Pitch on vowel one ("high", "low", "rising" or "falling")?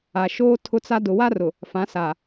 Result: low